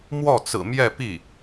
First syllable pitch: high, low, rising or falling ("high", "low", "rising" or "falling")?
falling